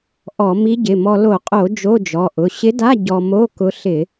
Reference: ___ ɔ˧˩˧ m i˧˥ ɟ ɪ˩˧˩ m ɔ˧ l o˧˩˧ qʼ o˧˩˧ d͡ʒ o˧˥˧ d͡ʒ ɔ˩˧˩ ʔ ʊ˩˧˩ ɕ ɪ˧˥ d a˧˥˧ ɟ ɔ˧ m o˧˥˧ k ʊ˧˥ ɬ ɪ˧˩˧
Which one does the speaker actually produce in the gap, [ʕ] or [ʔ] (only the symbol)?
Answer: ʔ